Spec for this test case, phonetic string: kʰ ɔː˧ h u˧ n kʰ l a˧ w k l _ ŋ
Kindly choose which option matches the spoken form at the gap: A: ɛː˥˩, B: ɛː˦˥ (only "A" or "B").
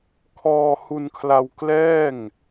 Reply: A